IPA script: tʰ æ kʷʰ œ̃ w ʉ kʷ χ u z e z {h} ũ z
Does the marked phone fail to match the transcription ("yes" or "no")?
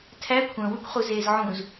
yes